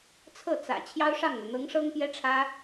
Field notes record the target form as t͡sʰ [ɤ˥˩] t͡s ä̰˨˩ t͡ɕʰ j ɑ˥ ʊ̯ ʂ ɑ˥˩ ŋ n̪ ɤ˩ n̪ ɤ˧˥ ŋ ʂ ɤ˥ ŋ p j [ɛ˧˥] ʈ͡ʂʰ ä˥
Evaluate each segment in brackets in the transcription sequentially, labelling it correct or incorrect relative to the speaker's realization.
correct, incorrect: ɛ˥

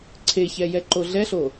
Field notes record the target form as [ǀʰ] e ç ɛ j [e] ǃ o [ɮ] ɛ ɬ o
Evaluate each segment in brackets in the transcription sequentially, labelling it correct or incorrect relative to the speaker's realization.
correct, incorrect: ɛ, correct

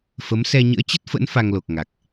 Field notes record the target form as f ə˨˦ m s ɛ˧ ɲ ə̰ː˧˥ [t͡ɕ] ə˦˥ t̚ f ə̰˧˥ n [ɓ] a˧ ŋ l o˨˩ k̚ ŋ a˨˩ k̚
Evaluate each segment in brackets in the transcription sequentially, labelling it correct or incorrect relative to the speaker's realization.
correct, incorrect: f

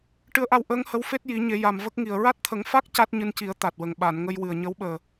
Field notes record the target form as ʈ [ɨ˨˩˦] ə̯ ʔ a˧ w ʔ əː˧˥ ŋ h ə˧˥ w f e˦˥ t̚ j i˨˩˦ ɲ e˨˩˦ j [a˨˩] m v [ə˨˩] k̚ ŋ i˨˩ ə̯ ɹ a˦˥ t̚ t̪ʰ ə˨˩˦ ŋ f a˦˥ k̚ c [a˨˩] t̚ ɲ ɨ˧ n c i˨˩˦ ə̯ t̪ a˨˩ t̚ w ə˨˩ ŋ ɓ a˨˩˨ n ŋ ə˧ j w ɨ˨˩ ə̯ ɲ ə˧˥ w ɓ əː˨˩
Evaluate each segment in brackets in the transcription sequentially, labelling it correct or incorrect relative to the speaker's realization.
incorrect: ɨ˧˥, correct, incorrect: ə˦˥, incorrect: a˦˥

